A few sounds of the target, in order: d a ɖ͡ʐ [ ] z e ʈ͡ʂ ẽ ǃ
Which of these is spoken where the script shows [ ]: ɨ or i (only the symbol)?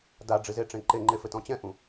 ɨ